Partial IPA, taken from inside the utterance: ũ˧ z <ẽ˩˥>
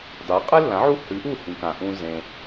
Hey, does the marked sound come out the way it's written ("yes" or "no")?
no